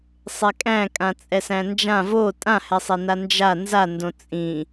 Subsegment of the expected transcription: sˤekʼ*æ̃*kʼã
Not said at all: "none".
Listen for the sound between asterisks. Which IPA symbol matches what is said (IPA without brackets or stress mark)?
æ̃